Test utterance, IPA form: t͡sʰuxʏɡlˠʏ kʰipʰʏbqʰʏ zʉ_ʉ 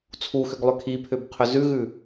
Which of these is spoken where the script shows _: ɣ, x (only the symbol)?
ɣ